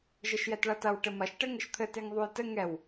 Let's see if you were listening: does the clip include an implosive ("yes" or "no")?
no